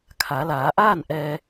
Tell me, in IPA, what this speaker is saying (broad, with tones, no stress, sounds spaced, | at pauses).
kʰ a˩˧ l aː˩˧ ʔ aː˥˨ n ʔ ɛː˧